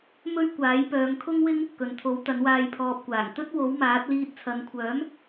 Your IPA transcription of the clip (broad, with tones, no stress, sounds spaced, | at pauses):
m ɵ˥ ɥ kʷ aː˨˥ j p œː˨˧ ŋ kʰ ʊ˥ ŋ w ɪ˥ ŋ | k ɵ˨ n t̪ʰ o˨˥ w t̪ ɐ˨˥ n w aː˧ j pʰ ɔː˨ p̚ kʷ aː˨˩ ŋ t̪ ɵ˥ t̚ w o˨˥ w m aː˨˥ t̚ l iː˧ t̚ t͡sʰ ɐ˨˧ n kʷʰ œː˨˥ m